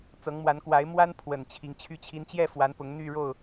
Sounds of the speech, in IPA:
t͡s ɤ˨˦ ŋ m w a˨˦ n k w a˨˦ ɪ̯ m w a˦ n pʰ w ə˨˩ n t͡ɕʰ i˨˦ ŋ t͡ɕʰ y˥˨ t͡ɕʰ i˦ n t͡ɕ j ɛ˥˨ f w a˨˦ n p ʊ˨˦ ŋ n̪ y˥˨ ɻ o˥˨ ʊ̯

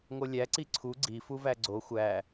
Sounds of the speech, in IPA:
ŋ o lʲ æ ǀ i ǀʰ u ɡ͡ǀ i f u v æ ɡ͡ǀ o xʷ æ

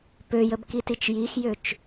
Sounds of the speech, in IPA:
p ø j ə b k i t i t͡ʃ j i x j ø t͡ʃ

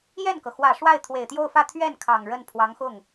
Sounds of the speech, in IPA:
j ɛ˥˩ n k ɤ˩ x w ä˨˩ ʂ w a˥˩ ɪ̯ t̪ʰ w e˨˩ ɪ̯ t̪ j o˥˧ ʊ̯ f ä˥˧ t̪ʰ ɥ ɛ˥˩ n kʰ ɑ˨˩ ŋ ɻ ə˥˩ n pʰ w ɑ˧˥ ŋ x ʊ˥˩ ŋ

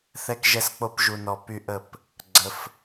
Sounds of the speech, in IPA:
θ ɛ˦ k ʒ ɛ˦˨ s k͡p o˦ p ʒ u˨ n ɔ˨ p y˦ ʔ ə˦˨ p | ɡ͡ǀ ə˧ f

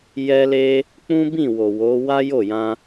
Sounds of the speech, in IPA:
j ɛ˦ l e˦ | k͡p ũ˦ b ĩ˦˨ w o˨ w o˨˦ w a˦ j o˦˨ j ã˧

